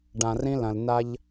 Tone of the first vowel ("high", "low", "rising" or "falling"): low